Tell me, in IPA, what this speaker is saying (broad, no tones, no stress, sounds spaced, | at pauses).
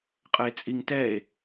qʼ ə e̯ t͡sʼ i ŋ t ɛ e̯